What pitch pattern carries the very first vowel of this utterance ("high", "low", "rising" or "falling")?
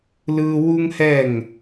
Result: high